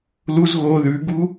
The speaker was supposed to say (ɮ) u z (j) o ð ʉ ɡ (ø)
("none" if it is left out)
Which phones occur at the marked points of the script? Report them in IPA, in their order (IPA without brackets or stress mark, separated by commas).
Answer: l, ɣ, u